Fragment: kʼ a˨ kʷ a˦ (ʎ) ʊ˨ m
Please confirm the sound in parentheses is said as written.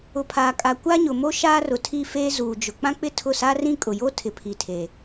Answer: no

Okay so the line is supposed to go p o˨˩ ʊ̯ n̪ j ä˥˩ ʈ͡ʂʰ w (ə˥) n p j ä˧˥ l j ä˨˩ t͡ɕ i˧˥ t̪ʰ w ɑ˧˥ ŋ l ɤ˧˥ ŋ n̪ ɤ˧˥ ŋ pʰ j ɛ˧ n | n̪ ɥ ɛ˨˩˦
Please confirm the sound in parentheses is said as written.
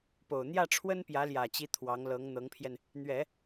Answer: yes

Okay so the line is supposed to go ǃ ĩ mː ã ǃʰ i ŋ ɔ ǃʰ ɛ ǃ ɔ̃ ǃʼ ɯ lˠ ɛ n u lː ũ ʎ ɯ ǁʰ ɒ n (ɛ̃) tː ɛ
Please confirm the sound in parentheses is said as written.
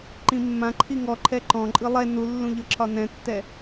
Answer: yes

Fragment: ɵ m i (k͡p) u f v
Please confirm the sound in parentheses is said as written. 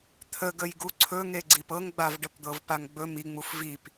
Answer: no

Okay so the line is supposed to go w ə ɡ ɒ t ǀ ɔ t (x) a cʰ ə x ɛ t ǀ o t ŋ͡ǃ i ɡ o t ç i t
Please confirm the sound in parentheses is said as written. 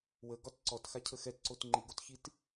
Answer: yes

